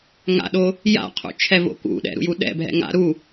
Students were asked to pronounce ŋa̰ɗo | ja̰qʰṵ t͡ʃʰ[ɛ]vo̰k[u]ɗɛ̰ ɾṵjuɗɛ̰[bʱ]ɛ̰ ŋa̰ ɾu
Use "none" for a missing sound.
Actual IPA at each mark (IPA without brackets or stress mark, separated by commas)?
ɛ, ṵ, bʱ